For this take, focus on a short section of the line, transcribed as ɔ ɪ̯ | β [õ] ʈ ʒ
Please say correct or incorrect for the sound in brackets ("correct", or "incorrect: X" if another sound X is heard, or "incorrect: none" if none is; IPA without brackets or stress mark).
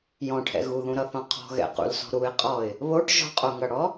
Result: incorrect: o